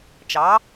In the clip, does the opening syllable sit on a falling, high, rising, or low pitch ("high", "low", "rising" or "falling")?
rising